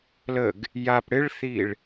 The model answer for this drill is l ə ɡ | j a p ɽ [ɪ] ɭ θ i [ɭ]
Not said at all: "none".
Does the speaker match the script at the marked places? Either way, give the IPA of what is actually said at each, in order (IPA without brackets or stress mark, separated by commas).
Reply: ɪ, ɭ